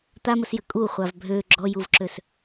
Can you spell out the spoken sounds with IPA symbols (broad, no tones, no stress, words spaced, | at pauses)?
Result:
t̪aməsjə kʼu χʷavbʱø ɡ͡ǁɔjuvǁøs